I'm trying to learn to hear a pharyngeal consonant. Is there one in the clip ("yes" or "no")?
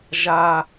no